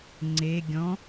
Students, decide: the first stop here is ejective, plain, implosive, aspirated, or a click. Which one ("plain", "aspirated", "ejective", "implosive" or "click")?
click